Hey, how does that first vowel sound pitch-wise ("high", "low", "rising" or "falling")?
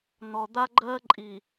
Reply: low